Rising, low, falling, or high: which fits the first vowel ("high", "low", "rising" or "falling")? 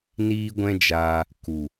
high